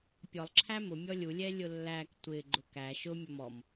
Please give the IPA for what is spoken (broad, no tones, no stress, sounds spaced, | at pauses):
pʲ ɔ lˠ ǁʰ æ m ʊ mʲ ɔ lʲ u lʲ ɛ lʲ ʊ lː æ k tʷ ɪ ɡ͡ǃ ʊ k æ ʃ ʊ mʲ ɔ m ɔ m